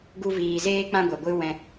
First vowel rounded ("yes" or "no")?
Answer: yes